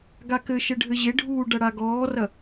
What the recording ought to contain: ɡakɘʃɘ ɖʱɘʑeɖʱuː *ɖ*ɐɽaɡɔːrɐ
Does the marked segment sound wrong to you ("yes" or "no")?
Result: no